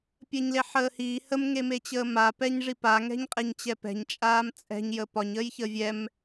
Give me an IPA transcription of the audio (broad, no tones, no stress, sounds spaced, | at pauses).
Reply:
pʲ əː ɲ l e ħ əː h iː h ə m ŋ e m e t͡ɕ əː m a p ɛ ɲ ʐ i p a ŋ ɛ̤ ɲ qʼ e ɲ t͡ɕ ɛ p ɛ̤ ɲ t͡ʃʼ aː m t͡sʼ ɛ̤ ɲ j ə p ɒ ɲ əː j ç ə vʲ ɛ m